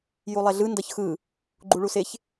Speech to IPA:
j u lˠ ɛ ɮ ɯ n d ʌ ç x ɯ | ɡ͡ǃ u ɭ u s e ç

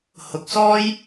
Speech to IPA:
h ʊ˨˥ k̚ s ɔː˥ j

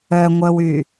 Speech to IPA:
œ ŋʷ œ w y

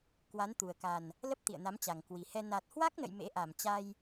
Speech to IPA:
k w a˨˦ n t̪ u˨˩ ə̯ k a˨˩ n | l ə˦˥ p̚ t̪ ḭ˧˨ ə̯ n a˨˦ m t͡ɕ a˨˩ ŋ k w i˨˩ h ɛ˧ n a˨˩ t̚ h w a˦˥ k̚ n ə̰˧˨ j m ḛ˧˥ ʔ a˧˩ m t͡ɕ a˧ j

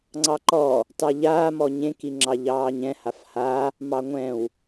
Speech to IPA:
ŋ͡ǀ ɑ ǃ ɔ | t ɑ ʎ aː m ɔ ɲ ẽ k i ŋ͡ǁ ɑ ʎ ɑː ɲ ɛ̃ h a f h a | m ɑ ŋʷ ɛ̃ w

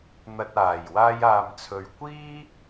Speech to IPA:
n̪ ɐ˨ t̚ aː˨˩ j w aː˧ j aː˨ m t͡sʰ ɵ˨ ɥ kʷ iː˥

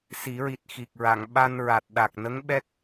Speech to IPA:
s i˨˩˦ ɹ i˨˩ t̚ x i˨˩ k̚ ɹ a˨˩˨ ŋ ɓ a˧ n ɹ a˨˩ t̚ ɗ a˨˩ k̚ n ə˧˥ ŋ ɓ ɛ˦˥ k̚

